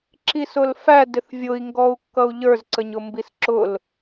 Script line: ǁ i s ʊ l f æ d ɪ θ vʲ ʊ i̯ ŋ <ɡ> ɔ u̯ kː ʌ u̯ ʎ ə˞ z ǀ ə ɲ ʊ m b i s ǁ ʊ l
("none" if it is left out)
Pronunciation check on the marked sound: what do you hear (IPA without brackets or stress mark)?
ɡ